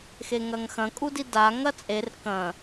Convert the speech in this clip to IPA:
x e ŋ ɐ ŋ x ɐ̃ kʼ u d i d a ŋ ɐ t͡sʼ e r k ɐ̃

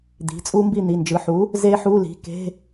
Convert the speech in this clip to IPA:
d̪ i̤˩˧˩ t͡sʼ u˦˥ m b i˥˨ n̪ i˩˧˩ n d͡ʒ ɯ˩˧˩ ħ u˩˥ | z e˦˥ ħ u˧˥˧ l i̤˩˧˩ k e̤˧˥˧

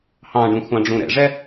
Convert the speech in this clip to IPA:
h ɑ̃ ɖ ũ xʷ ɑ̃ ɖ͡ʐ ũ ɾ ɛ̰ ʐ ɛ

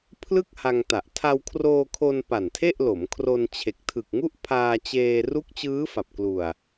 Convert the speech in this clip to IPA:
pʰ l ɯ˥˩ k̚ h a˧ ŋ t a˨˩ ʔ tʰ a˧ w kʰ r oː˧ kʰ o˧ n p a˨˩ n tʰ e˥˩ ʔ l o˩˦ m kʰ r o˧ n t͡ɕʰ e˨˩ k̚ tʰ ɯ˨˩ k̚ ŋ u˥˩ ʔ pʰ aː˧ t͡ɕ eː˧ r u˦˥ k̚ t͡ɕ ɯː˦˥ f a˨˩ p̚ k l u˨˩ a̯

